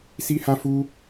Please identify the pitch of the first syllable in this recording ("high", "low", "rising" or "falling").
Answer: high